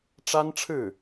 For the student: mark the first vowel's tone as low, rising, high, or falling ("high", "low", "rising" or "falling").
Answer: high